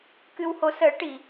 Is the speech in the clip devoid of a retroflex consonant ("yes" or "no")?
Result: no